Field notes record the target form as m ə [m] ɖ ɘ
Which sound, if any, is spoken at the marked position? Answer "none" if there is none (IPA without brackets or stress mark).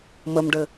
m